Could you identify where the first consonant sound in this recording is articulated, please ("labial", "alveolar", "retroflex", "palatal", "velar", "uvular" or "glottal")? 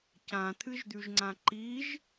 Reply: palatal